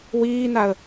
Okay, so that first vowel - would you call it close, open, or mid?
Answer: close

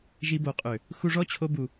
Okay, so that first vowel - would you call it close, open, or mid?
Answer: close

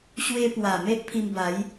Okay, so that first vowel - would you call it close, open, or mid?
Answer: mid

